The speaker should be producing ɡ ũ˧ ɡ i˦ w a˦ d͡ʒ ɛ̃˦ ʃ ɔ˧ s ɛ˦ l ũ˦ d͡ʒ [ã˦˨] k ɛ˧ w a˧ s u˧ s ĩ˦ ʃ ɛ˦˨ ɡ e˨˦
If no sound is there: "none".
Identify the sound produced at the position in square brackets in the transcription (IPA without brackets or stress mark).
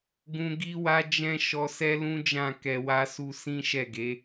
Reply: ã˦˨